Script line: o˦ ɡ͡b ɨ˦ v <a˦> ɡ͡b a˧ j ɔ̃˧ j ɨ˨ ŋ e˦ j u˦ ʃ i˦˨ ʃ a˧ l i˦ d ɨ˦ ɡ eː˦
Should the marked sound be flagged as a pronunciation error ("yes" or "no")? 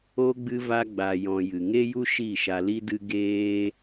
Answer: no